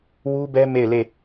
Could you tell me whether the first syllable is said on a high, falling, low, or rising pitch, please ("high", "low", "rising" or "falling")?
high